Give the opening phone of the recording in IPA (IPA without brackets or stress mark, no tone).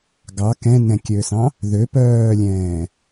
ɡ